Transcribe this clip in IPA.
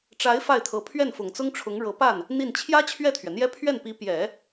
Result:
ʈ͡ʂ a˧˥ ɪ̯ f a˥˩ ɪ̯ t̪ʰ ɤ˧˥ pʰ ɥ ɛ˥˩ n f ʊ˨˩ ŋ t͡s ʊ˥ ŋ ʈ͡ʂʰ ʊ˧˥ ŋ ɻ ɤ˧˥ p a˥˩ n | n̪ i˥˩ n t͡ɕʰ j ä˥ t͡ɕʰ ɥ ɛ˥˩ t̪ʰ ɥ ɛ˩ n̪ j ɛ˥ pʰ ɥ ɛ˥˩ n p i˧˥ p j ɛ˨˩˦

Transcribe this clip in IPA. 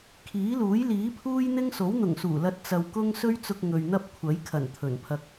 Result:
kʰ iː˨˥ l uː˨˥ j l iː˨˥ pʰ uː˥ j n̪ ɪ˥ ŋ s o˨˥ w n̪ ʊ˨˩ ŋ s uː˨˩ l ɐ˧ t̚ t͡s ɐ˧ w k ʊ˥ ŋ s ɵ˥ ɥ t͡s ʊ˧ k̚ ŋ ɵ˨ ɥ n̪ ɐ˥ p̚ kʷʰ ɐ˨˥ j kʰ ɐ˨˩ n t̪ʰ ɵ˨˩ n pʰ ɐ˧ k̚

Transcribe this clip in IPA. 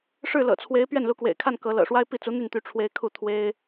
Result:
ʂ ɻ̩˥˩ l ɤ̰˨˩ t͡sʰ w e˧˥ ɪ̯ p ɥ ɛ˥˩ n l u˧˥ k w ḛ˨˩ ɪ̯ kʰ a˥˩ n k ɤ˧˥ l ɤ̰˨˩ ʂ w a˥ ɪ̯ p i˥˩ t͡s u˧˥ n̪ y˥˩ n t̪ y˧˥ ʈ͡ʂʰ w e˧˥ ɪ̯ kʰ u˥˩ t̪ʰ w e˥ ɪ̯

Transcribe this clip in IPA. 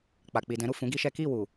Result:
k͡p a˨ k͡p i˨ d ɛ̃˨˦ ɾ u˦˨ f ũ˨˦ ɡ i˦ ʃ ɛ˦ k i˦˨ w u˨

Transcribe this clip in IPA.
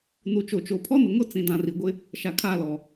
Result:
n u˨ t͡ʃ o˨ t͡ʃ o˨ pʰ ɔ˦ n ʊ˨ ŋ ʊ˦ t͡s ĩ˨ d ã˨ r i˨ ɡʷ ɪ˦ | ʃ a˨ kʰ aː˦˨ l ɔ˨

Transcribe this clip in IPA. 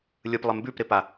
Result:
lʲ ɯ p lˠ ɪ m b ʉ p ɾ ɪ p a

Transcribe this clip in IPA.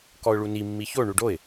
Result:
k ɔ ʊ̯ ɭ u n i mː i ç o ɳ u ɖ o ɪ̯

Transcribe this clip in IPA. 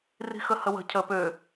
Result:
r i̤ x ə h ə w ə̤ cʰ ə p ø

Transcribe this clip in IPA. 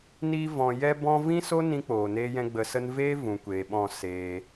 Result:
n iː˧ v ɔ̃˨ j ɛ˧ b ɔ̃˧ v ĩ˦ s o˦ n ĩ˦ k͡p oː˨ n eː˦ j ɛ̃˦ ɡ͡b ə˧ s ə˦ n v eː˦ v ũ˨ kʷ eː˨ ɓ ɔ̃˦˨ s eː˧

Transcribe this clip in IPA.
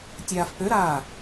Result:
tʲ aː f p ø ɾ aː

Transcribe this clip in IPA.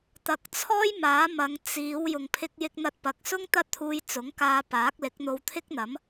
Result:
t̪ ɐ˨ k̚ t͡sʰ ɔː˥ j m aː˨˥ m ɐ˨˧ ŋ t͡s iː˨˧ w j ʊ˨ ŋ pʰ ɪ˧ k̚ j ɪ˧ k̚ n̪ ɐ˧ t̚ p ɐ˨ k̚ s ʊ˥ ŋ t̪ ɐ˥ t̚ t̪ʰ uː˧ j t͡s ʊ˨˥ ŋ k aː˧ p aː˨˥ k̚ l ɪ˨˥ k̚ n̪ o˧ w t̪ʰ ɪ˥ k̚ n̪ ɐ˨˥ m

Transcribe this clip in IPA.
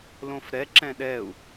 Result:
l õ f ɾ ɛ ǁ ɛ̃ ɗ ɛ u̯

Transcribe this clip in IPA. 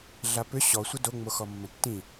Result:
ɮ a p ʏ ɕ ɔ sʷ ə d o ŋ͡m o x ɔ mː ə̃ tː ĩ

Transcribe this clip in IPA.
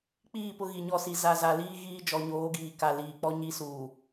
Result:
k͡p iː˦˨ p ʊ˦ ɣ i˨ ɲ ɔ˦˨ s i˨ z a˨ z a˨ l iː˦ ɣ iː˦ d͡ʒ ɔ˨ ɲ oː˨˦ ɡ iː˨ k a˨ l iː˨ k͡p ɔ˦ ɲ i˦ s uː˨

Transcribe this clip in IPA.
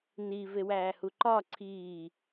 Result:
n i v e w æː h u ǃ ɒ ǀʰ iː

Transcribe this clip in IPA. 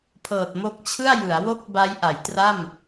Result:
pʰ ɤː˨˩ t̚ m o˦˥ k̚ t͡ɕʰ ɯ˥˩ a̯ j ɯ˩˦ a̯ w o˥˩ k̚ b a˦˥ j ʔ a˩˦ j t r a˥˩ m

